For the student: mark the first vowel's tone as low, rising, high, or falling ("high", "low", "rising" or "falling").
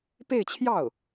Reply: falling